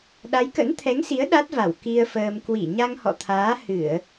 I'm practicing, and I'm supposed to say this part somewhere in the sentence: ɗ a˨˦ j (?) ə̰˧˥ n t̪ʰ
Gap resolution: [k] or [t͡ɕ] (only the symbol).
k